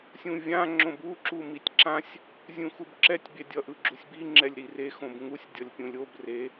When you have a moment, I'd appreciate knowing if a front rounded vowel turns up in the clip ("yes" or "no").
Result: no